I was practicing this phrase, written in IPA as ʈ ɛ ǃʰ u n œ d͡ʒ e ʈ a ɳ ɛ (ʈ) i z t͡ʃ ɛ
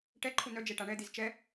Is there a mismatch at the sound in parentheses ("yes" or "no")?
yes